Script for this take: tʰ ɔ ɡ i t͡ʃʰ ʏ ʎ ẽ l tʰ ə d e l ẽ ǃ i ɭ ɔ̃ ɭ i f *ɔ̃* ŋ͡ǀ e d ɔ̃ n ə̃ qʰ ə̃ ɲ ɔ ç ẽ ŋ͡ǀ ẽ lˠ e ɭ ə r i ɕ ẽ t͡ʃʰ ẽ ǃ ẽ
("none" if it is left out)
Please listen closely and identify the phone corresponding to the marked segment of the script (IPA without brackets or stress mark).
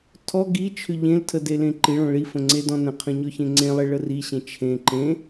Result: ə̃